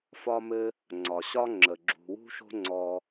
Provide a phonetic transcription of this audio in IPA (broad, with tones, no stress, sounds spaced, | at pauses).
f ɒ˧ m ɘ˧ | ŋ͡ǀ ɒ˨ ɕ ɒ˦ ŋ͡ǁ ə˨ ɡ͡ǁ ṳ˨ w ṳ˦ ʃ o̤˦ ŋ͡ǀ ɔ˧